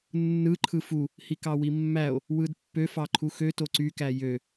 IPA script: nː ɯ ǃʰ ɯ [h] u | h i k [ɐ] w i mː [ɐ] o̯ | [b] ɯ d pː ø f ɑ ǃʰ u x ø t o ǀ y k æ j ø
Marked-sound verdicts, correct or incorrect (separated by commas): incorrect, incorrect, incorrect, incorrect